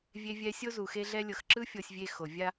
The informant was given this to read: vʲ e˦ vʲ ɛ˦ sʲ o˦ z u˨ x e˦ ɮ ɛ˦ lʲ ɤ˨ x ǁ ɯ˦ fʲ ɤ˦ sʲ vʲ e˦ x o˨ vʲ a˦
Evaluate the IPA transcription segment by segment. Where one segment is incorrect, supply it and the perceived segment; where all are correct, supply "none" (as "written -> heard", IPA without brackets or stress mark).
none